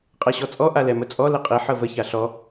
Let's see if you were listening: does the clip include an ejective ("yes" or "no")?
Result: yes